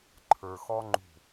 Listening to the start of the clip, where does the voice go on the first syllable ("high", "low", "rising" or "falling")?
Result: low